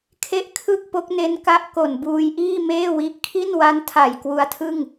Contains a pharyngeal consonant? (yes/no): no